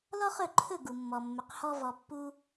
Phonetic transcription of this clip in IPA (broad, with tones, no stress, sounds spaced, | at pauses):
l ɔ˥ χ ɵ˥˩ ǃʰ ɵ˥˩ ɡ u˩ mː ɔ˩ mː ɵ˩ q h ɔ˧ v ɔ˩ pː u˧